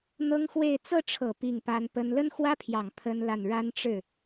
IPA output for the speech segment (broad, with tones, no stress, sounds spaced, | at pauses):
n̪ ɤ˥ ŋ x w e˥˧ ɪ̯ t͡s ɤ˥˩ ʈ͡ʂʰ ɤ˨˩ p i˥˩ ŋ p a˥ n p ə˥ n l ə˥ n x w ä˥ pʰ j ɑ˨˩ ŋ pʰ ə˥ n l a˥˩ n ɻ a˥ n ʈ͡ʂ ɻ̩˥˩